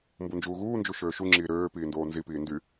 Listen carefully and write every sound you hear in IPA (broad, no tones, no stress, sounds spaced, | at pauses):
m b u n d͡ʒ uː ɣ uː n d͡ʒ u ʃ øː ʃ u ŋ͡ǁ iː ɾ øː p iː n d oː n z i p iː n d y